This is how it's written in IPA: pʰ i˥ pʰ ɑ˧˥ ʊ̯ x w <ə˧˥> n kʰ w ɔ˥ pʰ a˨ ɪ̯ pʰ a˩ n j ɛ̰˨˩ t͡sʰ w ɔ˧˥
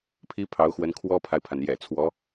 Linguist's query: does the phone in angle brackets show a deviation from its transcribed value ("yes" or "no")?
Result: no